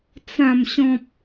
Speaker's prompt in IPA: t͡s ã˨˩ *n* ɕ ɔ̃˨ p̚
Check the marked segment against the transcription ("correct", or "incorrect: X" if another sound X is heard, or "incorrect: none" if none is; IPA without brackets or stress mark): incorrect: m